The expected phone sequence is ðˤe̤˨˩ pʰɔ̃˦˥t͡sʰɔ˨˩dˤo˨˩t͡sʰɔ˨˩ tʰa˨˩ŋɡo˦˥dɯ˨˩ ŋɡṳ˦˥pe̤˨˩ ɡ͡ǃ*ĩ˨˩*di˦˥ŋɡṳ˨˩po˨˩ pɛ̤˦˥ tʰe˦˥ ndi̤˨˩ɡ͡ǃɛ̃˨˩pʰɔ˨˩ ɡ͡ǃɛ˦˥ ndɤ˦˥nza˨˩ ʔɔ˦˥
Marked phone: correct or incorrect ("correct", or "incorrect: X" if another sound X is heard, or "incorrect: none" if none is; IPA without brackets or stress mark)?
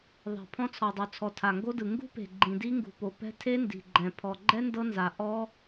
correct